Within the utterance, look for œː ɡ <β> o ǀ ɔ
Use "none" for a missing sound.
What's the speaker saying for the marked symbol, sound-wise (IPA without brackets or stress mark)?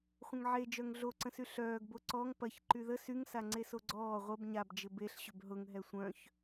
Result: b